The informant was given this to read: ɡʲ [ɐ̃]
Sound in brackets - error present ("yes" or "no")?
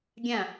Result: no